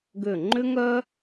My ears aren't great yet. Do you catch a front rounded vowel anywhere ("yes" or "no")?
yes